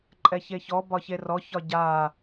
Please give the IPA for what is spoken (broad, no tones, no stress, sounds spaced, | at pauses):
ǃʼ ɛ ç e ç ɔ b ɒ ç e r ɔ ç ɒ ɟ a